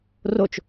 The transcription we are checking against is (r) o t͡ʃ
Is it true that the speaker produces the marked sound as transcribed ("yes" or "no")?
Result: yes